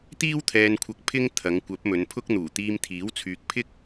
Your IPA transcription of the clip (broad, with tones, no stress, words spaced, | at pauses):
t̪iː˥wt̪ʰɛː˧nkʷʰɐ˧k̚ pʰɪ˥ŋ t̪ʰɐ˨˧ŋkʷɐ˨˥p̚ mɵ˨˧npʰʊ˥k̚n̪uː˨˩ t̪iː˧mt̪ʰiː˨˥wt͡sʰyː˨k̚ pʰɪ˥k̚